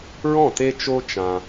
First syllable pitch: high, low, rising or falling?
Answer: falling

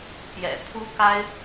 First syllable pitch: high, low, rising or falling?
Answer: low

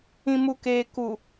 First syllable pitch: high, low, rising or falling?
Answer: low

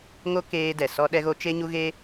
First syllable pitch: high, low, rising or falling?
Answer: high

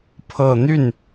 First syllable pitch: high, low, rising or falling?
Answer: low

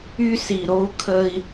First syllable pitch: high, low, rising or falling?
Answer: high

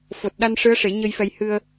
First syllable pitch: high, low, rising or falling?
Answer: low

